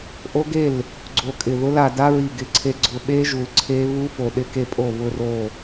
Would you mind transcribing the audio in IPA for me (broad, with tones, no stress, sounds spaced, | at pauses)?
ʔ o˦˥ ɡ e˥˩ l | ɡ͡ǀ o˧˩ kʼ ɪ˧˩ ð ʊ˦˥ l a˧ d a˦˥ ɹ i˧˩ ɡ ɪ˧˩ ǀʰ e˧ ɡ͡ǀ ʊ˧ ɓ e˦˥ ʒ u˧ l ǀʰ e˦˥ β u˦˥ f o˧˩ ɗ ɪ˥˩ k e˥˩ pʼ o˥˩ β ʊ˧ r o˧˩